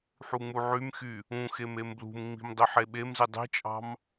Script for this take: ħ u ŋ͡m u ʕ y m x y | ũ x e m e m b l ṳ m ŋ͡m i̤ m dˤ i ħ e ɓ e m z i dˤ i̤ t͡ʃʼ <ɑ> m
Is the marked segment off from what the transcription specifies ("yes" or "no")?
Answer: yes